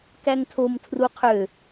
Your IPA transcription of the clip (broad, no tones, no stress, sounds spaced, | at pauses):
k æ ŋ tʰ o m tʰ r u qʰ ø